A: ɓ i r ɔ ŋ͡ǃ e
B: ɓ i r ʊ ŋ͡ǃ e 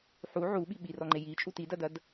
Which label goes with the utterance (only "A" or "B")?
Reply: A